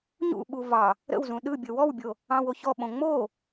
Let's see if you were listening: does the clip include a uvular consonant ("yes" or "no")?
no